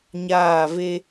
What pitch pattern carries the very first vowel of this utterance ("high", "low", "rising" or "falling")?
falling